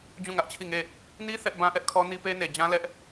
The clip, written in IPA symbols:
d͡ʑũ˦˨ŋä˦ʔt͡ɕʰi˦˨ŋe˦˨ | ni˦ θɛ˦ʔ bã˦ʔɛ˦ʔkʰɔ˦ ni˦pe˦ne˨ d͡ʑã˦lɛ˦ʔ

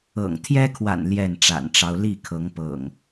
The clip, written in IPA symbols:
ɤ̰˨˩ŋt̪ʰjɛ˦kʰwa̰˨˩n ljɛ˥˨nʈ͡ʂa̰˨˩nʈ͡ʂɑ˦ʊ̯ li˥˨kʰɤ˨˦ŋ pɤ̰˨˩ŋ

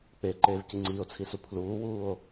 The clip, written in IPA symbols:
k͡peǃeːvci ŋ͡ǀiːo̯t͡sʰisu pʰluːwuːo̯

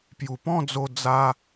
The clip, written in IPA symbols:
pju˨˩pɔ̃˥˧d͡zo˧ d͡za˧

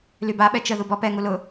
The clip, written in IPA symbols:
lyba ɓɛt͡ʃə ðubɔpɛ ŋulʊ

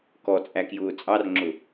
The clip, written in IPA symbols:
kɔt͡sʼækjʊː t͡sʼɑrŋ͡ǁʊ

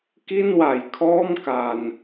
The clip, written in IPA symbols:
ki˥˩nwa˨˩jkʰɔː˥˩m ka˧n

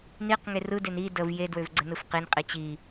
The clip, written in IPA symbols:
niqŋe rɯden i dəv jedwøv ɡ͡ǀənɯfqinqʼi t͡ɕi

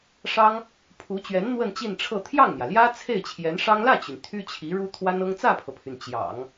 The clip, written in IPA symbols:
ʂɑ˥ŋ | pʰu˧˥t͡ɕɥɛ˧˥n n̪wə˥˧nt͡ɕi˥˧nʈ͡ʂʰɤ˥˧ t̪ʰjɑ˥˩ŋn̪jä˩ljä˥ t͡sʰe˥˩ɪ̯t͡ɕʰjɛ˧˥nʂɑ˥ŋ lä˥˩t͡ɕy˩n t̪ʰy˥t͡ɕʰi˧˥ɻu˥ t̪ʰwa˥nɤ˥ŋ t͡sä˥˩pʰɤ˩pʰy˩n t͡ɕjɑ̰˨˩˦ŋ

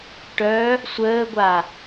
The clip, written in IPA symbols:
ʈœ | sʷəːɡʷa

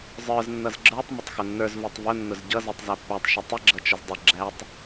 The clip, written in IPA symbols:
zˤə˞z nːʌzɡ͡ǁə˞tˤ mətˤxʊnːə˞z vutˤvʊ nːʊzɟʌ zutˤzæpːætˤ ʃətˤə ɡ͡ǁʌt͡ʃəzdˤə ɡ͡ǁætˤ

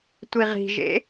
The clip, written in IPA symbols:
tʷiʁi̤ʒḛ

